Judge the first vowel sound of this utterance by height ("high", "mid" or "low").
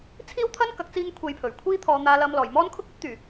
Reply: high